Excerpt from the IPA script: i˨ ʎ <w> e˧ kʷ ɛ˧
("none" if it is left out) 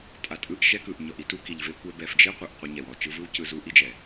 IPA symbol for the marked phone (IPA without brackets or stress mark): v